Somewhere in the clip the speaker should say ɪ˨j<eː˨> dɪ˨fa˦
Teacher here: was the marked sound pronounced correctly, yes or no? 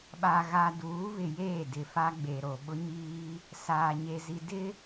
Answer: no